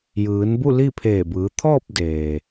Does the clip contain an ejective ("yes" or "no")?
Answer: no